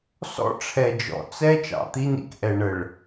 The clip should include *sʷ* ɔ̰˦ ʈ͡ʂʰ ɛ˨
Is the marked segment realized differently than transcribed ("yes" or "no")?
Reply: yes